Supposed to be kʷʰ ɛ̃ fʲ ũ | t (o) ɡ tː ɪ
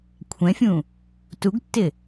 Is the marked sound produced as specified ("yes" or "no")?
no